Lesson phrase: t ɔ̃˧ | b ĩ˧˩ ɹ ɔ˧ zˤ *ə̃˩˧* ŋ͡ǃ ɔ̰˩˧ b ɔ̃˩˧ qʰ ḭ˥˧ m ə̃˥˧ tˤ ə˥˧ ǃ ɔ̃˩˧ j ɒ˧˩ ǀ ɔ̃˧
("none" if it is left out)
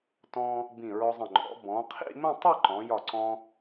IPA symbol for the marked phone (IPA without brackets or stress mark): ə̃˧˩